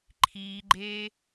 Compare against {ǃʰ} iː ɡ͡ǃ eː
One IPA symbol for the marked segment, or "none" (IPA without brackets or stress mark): ǃʰ